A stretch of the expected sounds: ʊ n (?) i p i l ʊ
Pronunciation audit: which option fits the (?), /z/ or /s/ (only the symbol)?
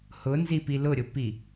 z